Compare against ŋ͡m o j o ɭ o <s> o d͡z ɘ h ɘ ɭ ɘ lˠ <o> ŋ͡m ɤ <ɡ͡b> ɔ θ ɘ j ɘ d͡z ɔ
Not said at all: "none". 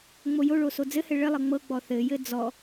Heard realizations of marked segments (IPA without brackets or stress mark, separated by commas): s, ɤ, ɡ͡b